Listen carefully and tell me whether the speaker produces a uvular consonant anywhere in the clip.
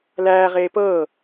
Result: yes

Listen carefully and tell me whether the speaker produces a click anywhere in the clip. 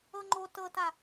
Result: yes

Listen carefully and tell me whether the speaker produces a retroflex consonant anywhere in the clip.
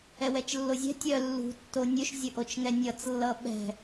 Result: no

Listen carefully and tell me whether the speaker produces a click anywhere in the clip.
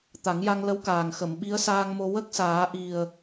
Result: no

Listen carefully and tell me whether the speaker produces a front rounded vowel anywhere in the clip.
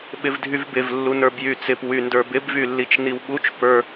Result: yes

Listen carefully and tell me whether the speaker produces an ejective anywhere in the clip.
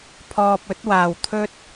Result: no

